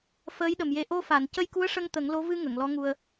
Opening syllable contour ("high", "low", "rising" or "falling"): rising